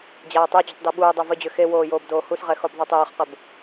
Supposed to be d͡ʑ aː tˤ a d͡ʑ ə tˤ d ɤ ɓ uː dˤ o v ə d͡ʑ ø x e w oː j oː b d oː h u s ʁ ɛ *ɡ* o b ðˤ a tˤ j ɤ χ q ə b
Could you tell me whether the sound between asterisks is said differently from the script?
yes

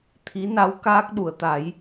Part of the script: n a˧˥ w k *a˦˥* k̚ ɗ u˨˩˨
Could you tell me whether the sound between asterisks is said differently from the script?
yes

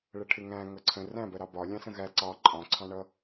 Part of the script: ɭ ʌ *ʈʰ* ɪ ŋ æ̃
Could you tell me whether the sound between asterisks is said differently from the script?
no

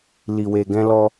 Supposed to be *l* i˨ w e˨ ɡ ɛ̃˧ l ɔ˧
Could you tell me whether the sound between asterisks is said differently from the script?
no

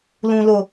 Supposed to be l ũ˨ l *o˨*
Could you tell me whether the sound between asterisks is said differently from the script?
no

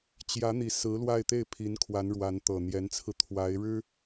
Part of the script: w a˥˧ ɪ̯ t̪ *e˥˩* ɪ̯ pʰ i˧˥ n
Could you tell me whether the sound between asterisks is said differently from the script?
no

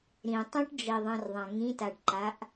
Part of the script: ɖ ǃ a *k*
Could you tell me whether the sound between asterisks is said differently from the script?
yes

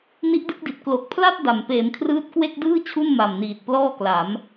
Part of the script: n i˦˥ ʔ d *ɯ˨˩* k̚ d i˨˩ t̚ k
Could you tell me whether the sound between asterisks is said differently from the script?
yes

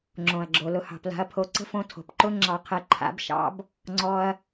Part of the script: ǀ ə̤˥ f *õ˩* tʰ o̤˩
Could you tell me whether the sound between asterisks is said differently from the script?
yes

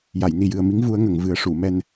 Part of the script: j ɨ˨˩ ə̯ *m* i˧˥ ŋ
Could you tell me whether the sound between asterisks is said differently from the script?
no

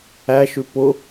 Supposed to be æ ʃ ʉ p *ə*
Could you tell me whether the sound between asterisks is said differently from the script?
yes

